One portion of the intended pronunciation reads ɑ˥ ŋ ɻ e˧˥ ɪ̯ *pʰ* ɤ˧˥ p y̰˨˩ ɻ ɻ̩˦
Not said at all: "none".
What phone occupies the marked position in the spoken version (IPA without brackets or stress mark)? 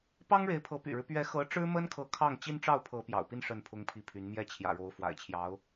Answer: pʰ